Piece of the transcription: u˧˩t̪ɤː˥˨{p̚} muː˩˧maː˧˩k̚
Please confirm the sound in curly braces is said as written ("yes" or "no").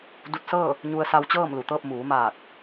yes